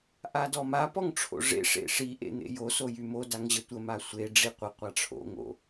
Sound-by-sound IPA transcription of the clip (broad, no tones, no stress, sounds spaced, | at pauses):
ʔ a d ɔ m a p ɔ ŋ ʈ͡ʂʰ o̰ ʐ ḛ ʂ ḛ ʂ i ʔ ḛ n̪ ḛ j o s o j y m o d a ŋ ʑ ə tʷ ə m a sʷ e ɖ͡ʐ i qʷ ə qʷ a ʈ͡ʂʰ o̰ ŋ o̰